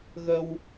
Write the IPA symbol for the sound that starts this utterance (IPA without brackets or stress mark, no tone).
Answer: ɣ